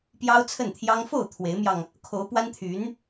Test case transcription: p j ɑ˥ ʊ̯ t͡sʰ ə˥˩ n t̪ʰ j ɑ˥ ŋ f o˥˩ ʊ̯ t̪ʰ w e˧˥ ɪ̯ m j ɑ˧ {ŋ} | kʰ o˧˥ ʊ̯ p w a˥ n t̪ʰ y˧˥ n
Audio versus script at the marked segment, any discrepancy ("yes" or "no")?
no